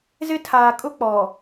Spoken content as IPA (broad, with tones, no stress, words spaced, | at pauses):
zɪ˦tʰaː˨kʼʊ˦k͡pɔ˨